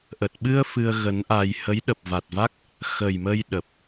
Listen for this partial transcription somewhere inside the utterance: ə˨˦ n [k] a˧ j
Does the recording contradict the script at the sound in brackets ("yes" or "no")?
yes